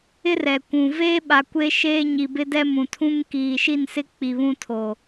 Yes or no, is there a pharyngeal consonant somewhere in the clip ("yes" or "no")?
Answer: no